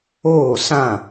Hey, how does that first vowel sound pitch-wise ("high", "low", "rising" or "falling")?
falling